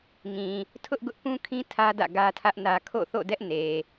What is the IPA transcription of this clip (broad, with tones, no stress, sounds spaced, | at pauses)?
ŋ ĩ˨ | tʰ ʊ˦ ʔ ɡ ʊ˦ ʔ p ũ˦ kʰ ĩ˦ tʰ ä˦ d ä̰˦˨ ɡ ä˦ tʰ ä˦ ʔ n ä˦ kʰ o̰˦˨ θ o̰˦˨ d ɛ˦ ʔ n e˨